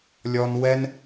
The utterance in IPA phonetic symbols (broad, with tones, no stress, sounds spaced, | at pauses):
lʲ ɔ˧ n w ɛ˦ n